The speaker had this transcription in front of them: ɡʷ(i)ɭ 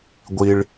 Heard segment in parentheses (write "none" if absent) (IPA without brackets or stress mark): i